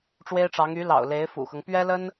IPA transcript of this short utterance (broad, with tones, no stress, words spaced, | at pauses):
ʈ͡ʂwe˥ɪ̯ʈ͡ʂɑ˧˥ŋ y˧˥ lɑ̰˨˩ʊ̯le˧˥ɪ̯fṵ˨˩xɤ˦ŋ pɥɛ˥lə˥n